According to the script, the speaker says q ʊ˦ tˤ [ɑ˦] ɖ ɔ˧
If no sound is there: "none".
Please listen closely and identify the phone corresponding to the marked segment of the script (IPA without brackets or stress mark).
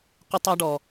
ɑ˦